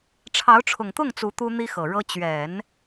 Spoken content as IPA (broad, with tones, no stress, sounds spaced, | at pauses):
ʈ͡ʂʰ ɑ˧˥ ʊ̯ ʈ͡ʂʰ ʊ˨˩ ŋ t̪ ʊ˥˩ ŋ t͡s u˧˥ t̪ u˥ n̪ i˥ x ɤ˨˩ ɻ ɤ˥ t͡ɕ ɥ ɛ˨˩˦ n